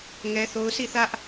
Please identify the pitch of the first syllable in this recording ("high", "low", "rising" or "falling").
high